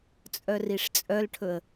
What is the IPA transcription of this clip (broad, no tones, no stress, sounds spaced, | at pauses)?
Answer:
t͡sʼ œ r i ʂ t͡sʼ œ l ʈʰ ɵ ə̯